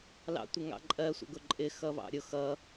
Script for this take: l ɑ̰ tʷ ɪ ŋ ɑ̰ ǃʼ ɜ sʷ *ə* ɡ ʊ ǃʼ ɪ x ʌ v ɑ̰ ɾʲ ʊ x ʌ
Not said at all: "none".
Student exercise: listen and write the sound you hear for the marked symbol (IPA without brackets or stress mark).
ə̰